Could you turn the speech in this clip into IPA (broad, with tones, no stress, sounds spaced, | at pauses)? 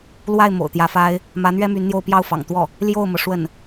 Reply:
l w a˥˩ ɪ̯ m o̰˨˩ ʊ̯ t̪ j ä˧˥ f a˥ ɪ̯ | m ä˧˥ n̪ ɥ ɛ˥ m y˧˥ n n̪ j o˥˧ ʊ̯ p j ɑ˥˩ ʊ̯ f ɑ̰˨˩ ŋ t̪ w ɔ˥˩ | l j o˥˩ ʊ̯ m ɤ˩ ʂ w ə˥˩ n